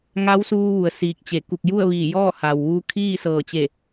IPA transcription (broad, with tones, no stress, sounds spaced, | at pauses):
ŋ a˧˥ w s uː˧ ʋ u˩ ə̯ s iː˧˩ k̚ t͡ɕ e˧˩ k u˧˩ k̚ j u˥˨ ə̯ ʋ iː˧˩ j ɔː˥˨ h aː˩ w ʋ uː˧ kʰ iː˥˨ s ɤː˧˩ t͡ɕ e˧˩